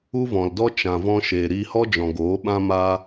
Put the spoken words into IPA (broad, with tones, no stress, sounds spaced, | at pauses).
u˦ v ɔ̃˨ l d ɔ˦ t͡ʃ ã˨ v ɔ̃˧ ʃ eː˨ ɾ iː˧ h ɔ˦ d͡ʒ ɔ̃˨ ɡ oː˨˦ ɓ ã˦ m aː˦